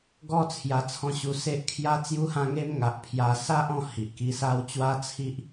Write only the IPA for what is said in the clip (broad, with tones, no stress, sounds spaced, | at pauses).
ɡ ɔ˦ t͡sʰ j a˧ t͡sʰ ɔ̃˥˧ ɕ u˧ s e˦ ʔ kʰ j a˦ t͡s j u˧ h ã˧ ŋ e˧ m ŋ a˨ ʔ pʰ j a˧ s a˦ ʔ ɔ̃˧ h i˨ ʔ k i˦ s a˦ w t͡ɕ w a˦ t͡sʰ i˦ ʔ